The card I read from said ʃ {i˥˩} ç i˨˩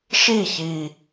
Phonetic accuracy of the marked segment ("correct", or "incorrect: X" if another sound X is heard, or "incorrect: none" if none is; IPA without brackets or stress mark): correct